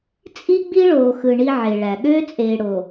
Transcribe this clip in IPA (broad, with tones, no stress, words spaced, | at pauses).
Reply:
t͡sʼi˦ ɡ͡bi˦ɭoː˨xɯ˨ ɳi˦ʕe˨ɭæ˨ ɠøː˦t͡sʼeː˨ɽo˨